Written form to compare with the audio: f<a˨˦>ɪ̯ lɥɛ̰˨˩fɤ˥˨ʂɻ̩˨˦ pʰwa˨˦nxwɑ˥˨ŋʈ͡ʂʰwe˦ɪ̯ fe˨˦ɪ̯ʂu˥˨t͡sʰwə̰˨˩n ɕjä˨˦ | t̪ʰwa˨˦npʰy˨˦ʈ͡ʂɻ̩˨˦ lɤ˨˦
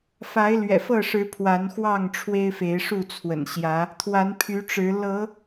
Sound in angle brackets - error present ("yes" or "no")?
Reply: no